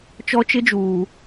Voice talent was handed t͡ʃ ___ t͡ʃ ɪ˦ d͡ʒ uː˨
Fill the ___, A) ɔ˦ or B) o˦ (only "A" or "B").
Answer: A